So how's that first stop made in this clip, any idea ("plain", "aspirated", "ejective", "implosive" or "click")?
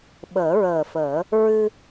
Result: implosive